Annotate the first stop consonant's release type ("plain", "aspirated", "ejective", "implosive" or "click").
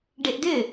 plain